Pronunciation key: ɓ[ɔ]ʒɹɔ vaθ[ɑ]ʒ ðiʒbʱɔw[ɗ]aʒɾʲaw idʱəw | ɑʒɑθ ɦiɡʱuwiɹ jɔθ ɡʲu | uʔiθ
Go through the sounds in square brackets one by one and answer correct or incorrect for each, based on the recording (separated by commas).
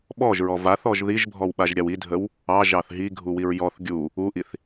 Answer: correct, incorrect, incorrect